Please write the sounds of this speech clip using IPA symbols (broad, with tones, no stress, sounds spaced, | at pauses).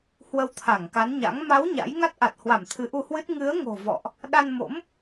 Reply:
h w ə˧ w t̪ʰ a˧˩ ŋ k a˨˦ n ɲ a̰˧˥ ŋ m a˨˦ w ɲ a̰˧˥ j ŋ a˦˥ t̚ ʔ a˨˩ t̚ h w a˧˩ m t̪ʰ ɨ˨˦ ʔ u˧ h w ɨ˦˥ t̚ ŋ ɨ˨˦ ə̯ ŋ o̤˨˩ v ɔ̰˧˨ ʔ | ɗ a˧ n m o̰˧˥ m